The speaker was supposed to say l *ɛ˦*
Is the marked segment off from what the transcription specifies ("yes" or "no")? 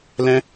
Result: yes